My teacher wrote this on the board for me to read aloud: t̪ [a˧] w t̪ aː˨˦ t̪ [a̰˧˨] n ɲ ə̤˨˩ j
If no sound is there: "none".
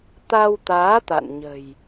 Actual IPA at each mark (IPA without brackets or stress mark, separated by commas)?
a˧, a̰˧˨